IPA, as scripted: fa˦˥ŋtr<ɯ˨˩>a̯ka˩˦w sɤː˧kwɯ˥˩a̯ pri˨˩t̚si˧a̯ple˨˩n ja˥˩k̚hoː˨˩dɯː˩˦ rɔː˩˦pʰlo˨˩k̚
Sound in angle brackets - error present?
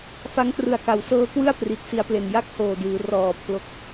no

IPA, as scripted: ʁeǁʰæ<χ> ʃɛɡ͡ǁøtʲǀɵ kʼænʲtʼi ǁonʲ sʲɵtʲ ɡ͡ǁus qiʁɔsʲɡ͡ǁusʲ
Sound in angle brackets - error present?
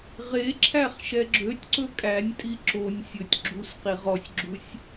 no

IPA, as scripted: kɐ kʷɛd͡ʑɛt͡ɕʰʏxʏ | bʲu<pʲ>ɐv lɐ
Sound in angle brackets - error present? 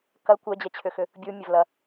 yes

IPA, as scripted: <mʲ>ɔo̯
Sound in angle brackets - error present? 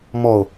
yes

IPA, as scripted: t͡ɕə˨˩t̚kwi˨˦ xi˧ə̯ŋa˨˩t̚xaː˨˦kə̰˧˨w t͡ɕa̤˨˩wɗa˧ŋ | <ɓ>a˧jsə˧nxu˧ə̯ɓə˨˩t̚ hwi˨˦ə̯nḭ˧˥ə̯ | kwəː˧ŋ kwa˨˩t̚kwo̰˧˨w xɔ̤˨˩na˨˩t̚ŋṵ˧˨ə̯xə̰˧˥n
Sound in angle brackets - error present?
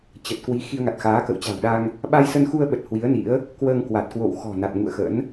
no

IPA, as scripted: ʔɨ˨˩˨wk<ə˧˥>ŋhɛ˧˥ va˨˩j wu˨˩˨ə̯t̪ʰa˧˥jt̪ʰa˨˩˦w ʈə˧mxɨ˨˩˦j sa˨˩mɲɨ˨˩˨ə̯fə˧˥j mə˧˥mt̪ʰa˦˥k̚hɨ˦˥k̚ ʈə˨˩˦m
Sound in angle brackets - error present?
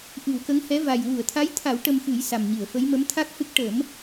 no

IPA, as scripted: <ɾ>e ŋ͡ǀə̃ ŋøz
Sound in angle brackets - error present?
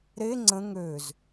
no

